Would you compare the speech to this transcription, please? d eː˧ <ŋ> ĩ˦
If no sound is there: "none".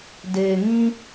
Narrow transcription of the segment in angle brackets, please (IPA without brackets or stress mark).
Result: ŋ